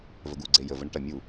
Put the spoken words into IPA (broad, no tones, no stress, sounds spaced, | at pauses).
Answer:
v ə ɡ u ɡ͡ǀ e j ə v ə ɳ ə ʈ ɐ mʲ u